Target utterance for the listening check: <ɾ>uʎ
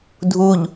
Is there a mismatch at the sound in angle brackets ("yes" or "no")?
yes